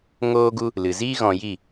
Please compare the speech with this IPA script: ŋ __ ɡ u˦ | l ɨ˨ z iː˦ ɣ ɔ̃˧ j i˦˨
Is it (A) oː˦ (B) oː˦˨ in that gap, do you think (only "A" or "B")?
A